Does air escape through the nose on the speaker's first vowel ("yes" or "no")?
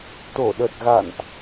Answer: no